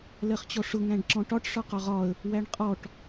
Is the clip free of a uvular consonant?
no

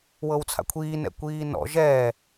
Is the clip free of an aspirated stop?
no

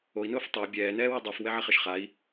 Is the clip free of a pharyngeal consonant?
no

